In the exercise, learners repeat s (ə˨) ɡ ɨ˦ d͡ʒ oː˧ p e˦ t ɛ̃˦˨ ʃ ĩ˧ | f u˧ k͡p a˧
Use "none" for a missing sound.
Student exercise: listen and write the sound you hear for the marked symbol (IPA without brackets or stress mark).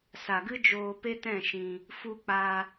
a˨